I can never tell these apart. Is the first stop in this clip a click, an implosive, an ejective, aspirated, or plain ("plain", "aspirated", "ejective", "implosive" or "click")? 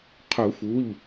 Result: aspirated